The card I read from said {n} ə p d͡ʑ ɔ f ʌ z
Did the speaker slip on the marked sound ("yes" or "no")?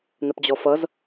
no